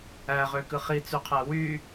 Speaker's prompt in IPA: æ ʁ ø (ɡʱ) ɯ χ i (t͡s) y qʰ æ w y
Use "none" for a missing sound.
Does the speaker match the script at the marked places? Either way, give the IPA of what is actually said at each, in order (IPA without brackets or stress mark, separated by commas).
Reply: k, t͡s